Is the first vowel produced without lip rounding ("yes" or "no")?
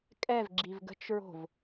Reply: yes